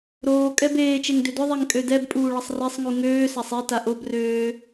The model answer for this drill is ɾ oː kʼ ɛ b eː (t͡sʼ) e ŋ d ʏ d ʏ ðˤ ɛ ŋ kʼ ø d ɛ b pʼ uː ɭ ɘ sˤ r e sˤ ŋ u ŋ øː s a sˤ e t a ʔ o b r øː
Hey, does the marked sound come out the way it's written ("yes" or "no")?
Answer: no